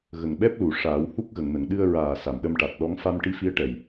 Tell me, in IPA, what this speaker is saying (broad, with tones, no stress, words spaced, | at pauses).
ɣə˨˩ŋɓɛ˦˥p̚lu˨˩˨ ʂaː˨˩˦w hu˦˥k̚ɣə˨˩˨ŋnə˨˩˨ŋ ɗɨ˧ə̯ɹaː˨˩ sa˨˩˨mɗə˧mʈa˨˩t̚ɗɔ˧˥ŋ fa˧mʈi˧˥ fi˧˥ə̯ʈɛ˨˩j